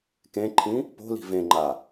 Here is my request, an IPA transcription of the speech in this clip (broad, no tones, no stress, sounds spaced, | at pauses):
k ẽ ǃʰ ĩ | p o̤ l i̤ v ẽ ŋ͡ǃ a